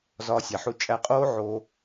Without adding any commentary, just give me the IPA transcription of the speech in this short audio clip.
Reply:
z ɒː˧ sʲ æ˨ ħ u˧ t͡ʃʼ æ˧ qʼ oː˦ ʕ o˧

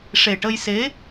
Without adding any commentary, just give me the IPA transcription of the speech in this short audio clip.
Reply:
ʂ e˨˩ ʈ ə˧ j s e˧˥

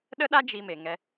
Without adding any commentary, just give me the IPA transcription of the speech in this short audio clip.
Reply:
ɗ ə˦ ɗ a˦ d͡ʒ i˧ m e˨ ŋ ɛ˧

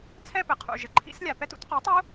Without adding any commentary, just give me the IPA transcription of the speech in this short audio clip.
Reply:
t͡sʰ ɛ˥˧ p ɘ˩ qʰ ṵ˩ ʒ ɘ˩ ǃʰ ḭ˦˥ s lʲ a˩ p ɛ˦˥ t ṵ˩˥ t q u˩˥ tˤ u˦˥

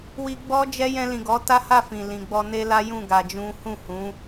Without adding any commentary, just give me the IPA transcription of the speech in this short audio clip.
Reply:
w i˧ ɡ͡b ɔ˦ d͡ʒ ɛ˦ j ɛ̃˧ l ĩ˨ ɡ ɔ˨˦ t a˦ h a˦˨ f ĩ˨ l ĩ˨ ɡ͡b ɔ˧ n e˦ l a˦ j ũ˦˨ ɡ a˧ d͡ʒ ũ˦ h ũ˦˨ h ũ˨˦

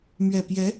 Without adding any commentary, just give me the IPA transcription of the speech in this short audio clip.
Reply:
m ɥ ɛ˨˩ p j ɛ˧˥

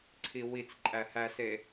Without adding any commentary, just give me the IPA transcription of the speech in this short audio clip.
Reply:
ǀʰ i w i t͡s ǃʼ æ h æ s e

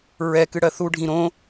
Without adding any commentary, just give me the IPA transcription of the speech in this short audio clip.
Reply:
ɹ ɛ k ɨ ɽ ɜ θ u ɖʱ ĩ ɾ õ

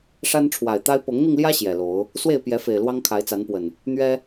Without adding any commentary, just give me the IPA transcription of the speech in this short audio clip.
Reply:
ʂ a˦ n ʈ͡ʂʰ w a˨˩ ɪ̯ t̪ a˦ ɪ̯ p ɤ˨˦ ŋ n̪ i˧ ŋ l j ä˦ ɕ j ɛ˨˩ l o˨˦ ʊ̯ | s w e˥˨ ɪ̯ p j ɛ˨˦ f e˨˩ ɪ̯ l w ɑ˦ ŋ kʰ a˨˦ ɪ̯ t͡s a˨˦ n p w ə˨˩ n | n̪ ɥ ɛ˦

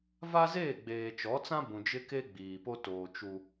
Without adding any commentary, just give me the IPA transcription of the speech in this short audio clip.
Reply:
v a˦ z eː˦˨ ɡ͡b eː˨ t͡ʃ ɔ˨˦ t͡s ã˦ b ũ˨ d͡ʒ ɪ˦ k e˦ ɡ͡b iː˨ p o˦ t oː˨ t͡ʃ u˦

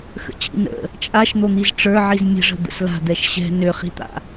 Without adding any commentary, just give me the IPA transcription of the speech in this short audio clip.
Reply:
x ə̰ t͡ɕ ḭ n ə̰ | t͡ʃʼ a ʃ n̪ o n̪ i z ʈ͡ʂ ə˞ ʕ i z mʲ ə̤ ʐ ə̤ d̪ ə̰ s l a̤ d̪ ɛ ʃ ɕ ɛ̤ n ø χ i̤ t̪ a̰

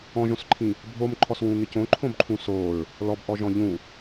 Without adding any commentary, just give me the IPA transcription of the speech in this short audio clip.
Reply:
ɔ̃ ʒ õ s ǃʰ ĩ | bʱ o m ǃʰ ɔ s w ũ ŋ ɪ c õ ǃʰ õ b ǃʰ ũ s o ɹ | l ɔ b ʔ ɔ ʒ ɔ̃ ʎ ũ

